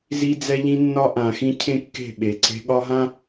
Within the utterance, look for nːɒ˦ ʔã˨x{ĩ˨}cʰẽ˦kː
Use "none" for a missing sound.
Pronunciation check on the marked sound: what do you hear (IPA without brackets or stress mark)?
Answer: ĩ˦